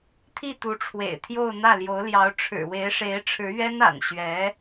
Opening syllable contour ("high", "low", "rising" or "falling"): falling